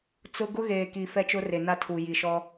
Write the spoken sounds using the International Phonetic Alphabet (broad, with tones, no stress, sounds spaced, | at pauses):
t͡s ʊ˦ ɡ ʊ˦ ɣ eː˨ k i˨ f ɛ˦ t͡ʃ ʊ˦ r e˨ n a˦ tʰ u˨ j i˨ ʃ ɔ˦